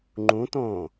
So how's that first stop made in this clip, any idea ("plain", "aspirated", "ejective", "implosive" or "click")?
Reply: click